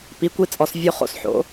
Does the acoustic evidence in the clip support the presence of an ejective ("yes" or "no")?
yes